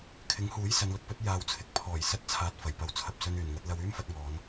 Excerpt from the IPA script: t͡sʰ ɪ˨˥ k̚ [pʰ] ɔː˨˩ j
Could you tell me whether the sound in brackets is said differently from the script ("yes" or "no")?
no